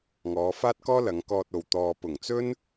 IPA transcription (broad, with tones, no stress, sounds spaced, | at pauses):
ŋ ɔː˨˧ f aː˥ t̚ k ɔː˥ l ɐ˨˧ ŋ k ɔː˧ t̚ o˨ w t̪ ɔː˨ p ʊ˨˩ ŋ t͡s ɵ˥ n